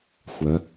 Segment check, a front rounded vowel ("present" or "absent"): present